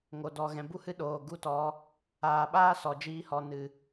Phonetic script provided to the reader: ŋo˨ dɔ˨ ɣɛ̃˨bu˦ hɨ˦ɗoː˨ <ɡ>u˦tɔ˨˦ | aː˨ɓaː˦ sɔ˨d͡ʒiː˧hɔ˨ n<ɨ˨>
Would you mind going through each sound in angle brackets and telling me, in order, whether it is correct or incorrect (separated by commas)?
correct, correct